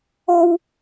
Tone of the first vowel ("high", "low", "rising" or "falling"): high